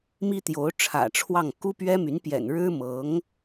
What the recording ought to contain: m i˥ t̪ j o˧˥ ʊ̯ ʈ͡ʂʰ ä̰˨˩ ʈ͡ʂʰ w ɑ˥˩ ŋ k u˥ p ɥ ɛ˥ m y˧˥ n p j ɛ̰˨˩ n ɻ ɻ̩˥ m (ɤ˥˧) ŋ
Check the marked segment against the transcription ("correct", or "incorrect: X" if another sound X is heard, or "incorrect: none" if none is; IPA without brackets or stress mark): incorrect: ɤ˧˥